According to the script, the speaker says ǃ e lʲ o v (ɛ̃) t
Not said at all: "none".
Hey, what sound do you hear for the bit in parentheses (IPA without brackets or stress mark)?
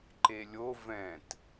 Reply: ɛ̃